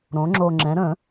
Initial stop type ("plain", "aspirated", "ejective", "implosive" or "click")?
click